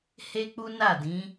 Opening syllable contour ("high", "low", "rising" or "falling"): high